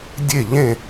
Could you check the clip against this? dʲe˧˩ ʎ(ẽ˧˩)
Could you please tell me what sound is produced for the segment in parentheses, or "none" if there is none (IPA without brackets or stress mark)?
ẽ˧˩